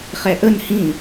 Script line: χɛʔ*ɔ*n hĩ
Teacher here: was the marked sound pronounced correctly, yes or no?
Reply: no